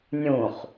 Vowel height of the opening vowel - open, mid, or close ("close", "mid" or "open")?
close